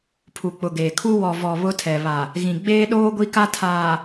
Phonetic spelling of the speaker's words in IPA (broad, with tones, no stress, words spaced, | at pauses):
pʰu˨k͡pʊ˨ɡeː˨kʰu˦ wɔ˨vɔ˨ βʊ˦tʰɛ˨ βa˨ | ɣĩ˨ɡ͡beː˦ɗoː˦ ɡʷi˦ka˦ tʰaː˨